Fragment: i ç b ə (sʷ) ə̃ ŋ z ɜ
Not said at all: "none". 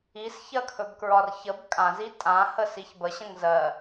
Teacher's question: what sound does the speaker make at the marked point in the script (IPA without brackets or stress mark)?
ɕ